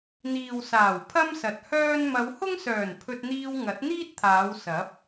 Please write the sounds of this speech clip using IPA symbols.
n̪ iː˨ w s aː˨˩ w pʰ ɐ˥ m s ɐ˨ t̚ h œː˥ n m ɐ˨˧ w h ʊ˥ ŋ s œː˨˩ n pʰ ɵ˧ t̚ n̪ iː˧ w ŋ ɐ˨˥ t̚ n̪ iː˥ t̚ t̪ʰ aː˨˧ w s ɐ˨˥ p̚

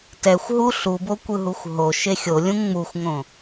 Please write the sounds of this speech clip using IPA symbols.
t ɛ xʷ ɦ u ɬ u b o kʷ ɯ ɦ u xʷ ɦ o ʃ e xʲ o lʲ ũ ŋ͡m u xʷ ŋ õ

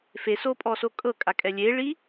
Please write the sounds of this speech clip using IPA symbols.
f e s o pʼ ɔ s o kʼ ɤ kʼ a kʼ ɛ lʲ e ɭ i

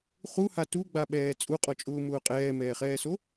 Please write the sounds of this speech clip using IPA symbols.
χ u h a t u ɡ͡b a ɓ ɛː t͡sʼ u qʼ ɔ t͡ʃʼ ʊː m ʊː qʼ ɛː m ɛː χ ɛː s o

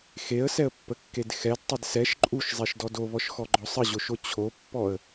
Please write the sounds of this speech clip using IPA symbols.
x e ə̯ s ɛ ə̯ pː ə kː e d x ɛ d tˤ ə d s ɛ ʃ ǃʼ u ʃ zˤ e ʃ d ɔ d o β ɔ ʃ x ɔ ɡ͡ǃ ɔ sˤ ə ʑ o ʃ o t͡ɕʰ o pː ɔ ə̯

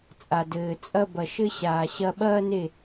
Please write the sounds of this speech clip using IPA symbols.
t͡sʼ a˨ d ɘː˨ t͡sʼ ɐ˦ b ɐ˨ ʃ ɘ˦ ɕ aː˨ ɕ ɐ˦ ɓ ɐː˦ n e˦˨

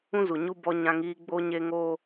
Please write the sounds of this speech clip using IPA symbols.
ũ˦ z u˨ ɲ u˦ b ɔ˦ ɲ ã˦ ŋ iː˦ ɡ͡b o˦ ɲ e˦ ŋ oː˦

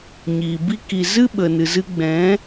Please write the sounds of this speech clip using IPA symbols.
ɲ iː˨ b i˦ k i˧ z ɨ˦ ɓ ə˨ n ɨ˨ z ɨ˧ ɡ͡b ɛ̃˨˦

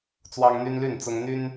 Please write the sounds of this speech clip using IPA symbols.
t͡s w ɑ˦ ŋ n̪ y˦ n l y˥˨ n t͡s ʊ˦ ŋ n̪ y˦ n

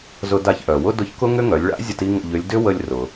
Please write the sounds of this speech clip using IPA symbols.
z ʊ˧ d a˧ ç ʔ œ˩ w ʊ˥ d ʊ˧˥ ç k ʊ˥ ŋ ʏ˥ ŋ œ˩˧ lʲ ɭ a̰˧˥ zʲ ə˧ t i˥ ŋ ə̰˧ ʎ ʏ˧˥ lʲ d ʏ˥ w ə˧ lʲ r ʊ˩

